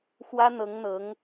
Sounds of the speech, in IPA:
xwä˥n̪ɤ˧˥ŋn̪ɤ˧˥ŋ

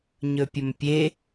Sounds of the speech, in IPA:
ɲɵpʲɵmpʲe

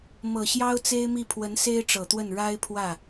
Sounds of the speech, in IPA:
mɤ˨˩ɕjɑ˥ʊ̯ t͡se˥ɪ̯mi˥˩ pʰwə˧˥n se˥ɪ̯ʈ͡ʂɤ˨˩t̪wə˥˩n ɻa˥ɪ̯pʰwä˥˩

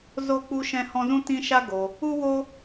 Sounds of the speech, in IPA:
zo˦k͡pu˦ʃɛ̃˦ hɔ̃˦ zũ˦tĩ˦ʃa˦ɡo˧ | u˦wo˦

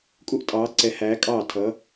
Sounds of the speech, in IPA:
kʼu˥ʔtʼɑː˨˥ǀɛ˨˥hæː˨˥ kʼɑː˥˩tʰʌ˨˥

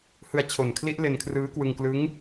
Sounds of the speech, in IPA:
hɯ˧a̯t͡ɕʰo˨˩nkʰli˦˥ʔ le˧nkʰrɯː˦˥kwɯ˧ŋklɯ˦˥ŋ

